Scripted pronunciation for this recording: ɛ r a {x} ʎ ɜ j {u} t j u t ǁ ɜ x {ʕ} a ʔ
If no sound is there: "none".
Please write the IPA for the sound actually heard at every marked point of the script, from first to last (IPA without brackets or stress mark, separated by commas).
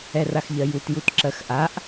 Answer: x, u, ʔ